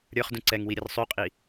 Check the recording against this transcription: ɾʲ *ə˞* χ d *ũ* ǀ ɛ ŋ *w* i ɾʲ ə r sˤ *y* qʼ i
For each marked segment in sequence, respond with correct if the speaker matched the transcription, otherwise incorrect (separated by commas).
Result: correct, correct, correct, correct